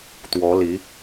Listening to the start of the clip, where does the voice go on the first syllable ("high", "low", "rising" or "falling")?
rising